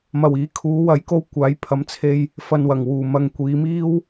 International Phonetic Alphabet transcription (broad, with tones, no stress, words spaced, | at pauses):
mɐ˨˩wiː˨˥kʰuː˨˧ wɐ˨˥jko˧w kʷaː˨˥j pʰɐ˨˧mt͡sʰe˧j | fɐ˨nwɐ˨˩ŋwuː˨˩ mɐ˨ŋkʷiː˨˧miː˥w